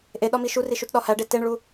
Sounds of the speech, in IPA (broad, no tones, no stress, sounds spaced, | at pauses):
ʔ e ɗ ɒ m i ʃ u r i ʃ u t ɗ ɒ h æ ɖ e t e ɳ ɭ u